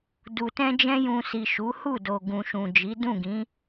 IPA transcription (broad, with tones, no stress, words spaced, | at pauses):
du˨tɛ̃˧ d͡ʒɛ̃˧jũ˨si˨ ʃu˨˦hu˦˨ do˨ɡũ˨ʃũ˨ d͡ʒi˨˦ dũ˦˨ɡĩ˨˦